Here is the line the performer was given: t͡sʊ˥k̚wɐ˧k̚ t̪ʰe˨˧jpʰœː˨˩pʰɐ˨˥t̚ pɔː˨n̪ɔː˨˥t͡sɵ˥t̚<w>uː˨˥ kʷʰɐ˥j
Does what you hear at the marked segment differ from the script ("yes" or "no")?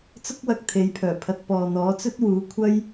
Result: no